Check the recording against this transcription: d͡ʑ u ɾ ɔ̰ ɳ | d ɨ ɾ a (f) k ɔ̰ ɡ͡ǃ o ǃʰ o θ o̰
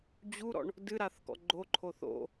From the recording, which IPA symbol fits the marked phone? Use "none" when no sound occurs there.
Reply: θ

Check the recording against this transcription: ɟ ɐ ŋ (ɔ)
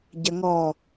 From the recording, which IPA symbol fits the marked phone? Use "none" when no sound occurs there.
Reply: ɔ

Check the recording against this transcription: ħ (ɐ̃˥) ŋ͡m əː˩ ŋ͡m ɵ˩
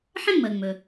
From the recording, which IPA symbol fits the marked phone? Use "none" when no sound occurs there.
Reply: ɐ̃˥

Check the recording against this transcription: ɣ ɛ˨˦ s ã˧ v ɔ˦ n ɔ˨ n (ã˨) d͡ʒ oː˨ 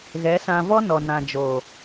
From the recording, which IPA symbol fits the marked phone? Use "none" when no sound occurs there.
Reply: ã˨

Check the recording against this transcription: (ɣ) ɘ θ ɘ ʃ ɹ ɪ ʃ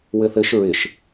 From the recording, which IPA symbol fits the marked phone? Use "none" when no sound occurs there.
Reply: w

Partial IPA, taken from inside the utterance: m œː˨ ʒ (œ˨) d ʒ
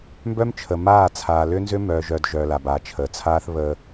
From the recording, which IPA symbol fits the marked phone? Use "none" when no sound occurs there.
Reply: œ˨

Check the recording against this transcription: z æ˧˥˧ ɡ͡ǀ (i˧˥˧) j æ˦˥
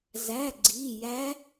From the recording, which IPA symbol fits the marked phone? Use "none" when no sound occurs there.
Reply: i˧˥˧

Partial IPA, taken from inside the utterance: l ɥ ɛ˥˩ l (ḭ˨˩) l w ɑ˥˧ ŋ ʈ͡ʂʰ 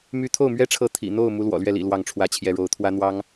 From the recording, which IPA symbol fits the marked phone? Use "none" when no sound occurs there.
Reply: ḭ˨˩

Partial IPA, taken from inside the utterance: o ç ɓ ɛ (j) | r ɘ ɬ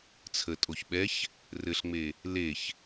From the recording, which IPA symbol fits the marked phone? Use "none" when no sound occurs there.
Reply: ç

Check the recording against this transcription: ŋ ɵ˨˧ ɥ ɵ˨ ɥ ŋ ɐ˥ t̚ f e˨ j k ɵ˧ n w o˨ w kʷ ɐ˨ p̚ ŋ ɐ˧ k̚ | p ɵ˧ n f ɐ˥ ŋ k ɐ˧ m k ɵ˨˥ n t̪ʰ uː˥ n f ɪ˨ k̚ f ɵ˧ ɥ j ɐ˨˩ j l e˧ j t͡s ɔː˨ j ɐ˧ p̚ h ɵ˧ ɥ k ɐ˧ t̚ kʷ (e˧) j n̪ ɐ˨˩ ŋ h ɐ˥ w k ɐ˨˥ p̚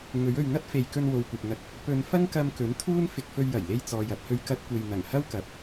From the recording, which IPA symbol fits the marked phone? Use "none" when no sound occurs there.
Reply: e˨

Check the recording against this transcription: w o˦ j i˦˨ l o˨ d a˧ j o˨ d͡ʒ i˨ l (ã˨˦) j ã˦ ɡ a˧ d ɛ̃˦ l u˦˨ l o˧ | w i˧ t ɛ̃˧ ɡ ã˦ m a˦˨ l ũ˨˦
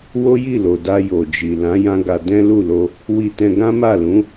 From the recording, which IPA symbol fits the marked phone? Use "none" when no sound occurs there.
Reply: ã˨˦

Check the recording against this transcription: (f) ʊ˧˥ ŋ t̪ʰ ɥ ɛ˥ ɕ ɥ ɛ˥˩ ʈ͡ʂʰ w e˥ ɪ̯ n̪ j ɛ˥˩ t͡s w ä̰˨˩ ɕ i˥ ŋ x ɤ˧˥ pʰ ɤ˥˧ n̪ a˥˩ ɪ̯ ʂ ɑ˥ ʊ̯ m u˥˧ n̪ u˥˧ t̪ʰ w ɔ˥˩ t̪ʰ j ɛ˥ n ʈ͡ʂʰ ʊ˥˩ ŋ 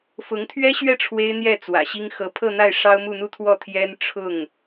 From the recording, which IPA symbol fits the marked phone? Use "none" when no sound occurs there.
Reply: f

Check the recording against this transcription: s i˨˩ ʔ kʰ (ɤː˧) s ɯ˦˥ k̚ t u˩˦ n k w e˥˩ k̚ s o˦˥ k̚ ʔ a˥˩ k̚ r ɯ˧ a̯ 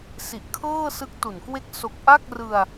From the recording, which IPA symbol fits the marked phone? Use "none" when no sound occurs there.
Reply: ɤː˥˩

